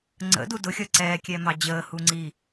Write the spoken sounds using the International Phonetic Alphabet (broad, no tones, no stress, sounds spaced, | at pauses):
ŋ͡ǀ ə̰ d u d ʊ xʲ ʌ ǀ ɛː kʲ ɛ m ɑ d͡ʑ əː h u ŋ͡ǀ i